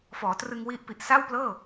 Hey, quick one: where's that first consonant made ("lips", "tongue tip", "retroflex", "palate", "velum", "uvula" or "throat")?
lips